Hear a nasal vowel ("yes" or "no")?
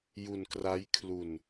no